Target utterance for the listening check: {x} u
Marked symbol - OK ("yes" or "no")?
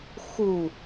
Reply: yes